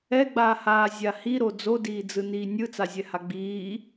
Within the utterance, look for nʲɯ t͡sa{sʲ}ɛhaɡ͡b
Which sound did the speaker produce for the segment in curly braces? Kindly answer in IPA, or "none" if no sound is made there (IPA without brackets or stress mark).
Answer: zʲ